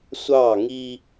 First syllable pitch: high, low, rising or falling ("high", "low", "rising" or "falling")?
falling